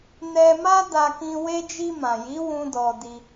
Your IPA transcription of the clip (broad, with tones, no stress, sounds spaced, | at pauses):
n ɛ˧ m a˦ d a˧ k ĩ˧ w e˧ d͡ʒ i˧ m ã˨ j i˨˦ w ũ˧ d ɔ˧ d i˧